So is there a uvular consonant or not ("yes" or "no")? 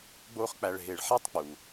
yes